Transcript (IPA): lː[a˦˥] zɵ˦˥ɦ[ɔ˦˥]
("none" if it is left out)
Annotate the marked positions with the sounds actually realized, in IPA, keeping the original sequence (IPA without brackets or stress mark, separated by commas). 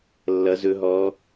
ʌ˦˥, ɔ˦˥